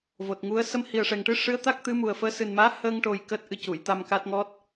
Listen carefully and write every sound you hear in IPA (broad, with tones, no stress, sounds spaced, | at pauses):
v o˨˩ t̚ ŋ u˧˥ ə̯ s ə˧ m h i˨˩ ə̯ ʂ ɛ˨˩ ŋ ʈ ɨ˧˥ ʂ ɨ˧˥ ə̯ t̪ a˦˥ k̚ t̪ ɨ˧˥ m u˨˩ ə̯ f əː˧˥ s ɨ˨˩ n m aː˧˥ h əː˧ ŋ ʈ o˨˩ j k əː˦˥ t̚ ʔ ɨ˧ c u˨˩˨ j t̪ a˧ m k a˦˥ t̚ ŋ ɔ˦˥ t̚